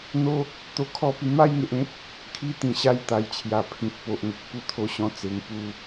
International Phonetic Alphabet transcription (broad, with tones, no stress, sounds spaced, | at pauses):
n̪ o˦ | t̪ o˧ kʰ ɔ˥˧ p i˧ m a˥˧ j ŋ e˨ ʔ ẽ˦ p̚ | kʰ i˥˧ t̪ ĩ˨˩ ɕ a˥˧ j t̪ a˨˩ j t͡ɕʰ j a˨˩ pʰ ĩ˨ t̚ p o˨ ʔ ŋ ə˨ k̚ p u˧ t̪ʰ o˧ ɕ ɔ̃˧ t͡s e˧ ŋ p u˥˧